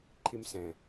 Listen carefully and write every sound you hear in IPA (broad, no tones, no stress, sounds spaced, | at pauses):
ǃʰ i m s ɛ̃